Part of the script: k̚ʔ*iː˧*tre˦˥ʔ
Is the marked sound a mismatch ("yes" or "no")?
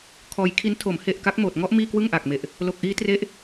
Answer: yes